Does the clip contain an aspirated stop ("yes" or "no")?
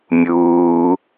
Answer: no